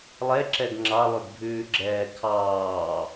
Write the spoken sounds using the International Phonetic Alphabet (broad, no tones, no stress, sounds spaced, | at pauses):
lˠ ɛ ǁ ɛ ɡ ŋ͡ǁ ɑ lˠ ʉ ɡ bʱ ʉː ɡ͡ǁ ɛː kʰ ɑː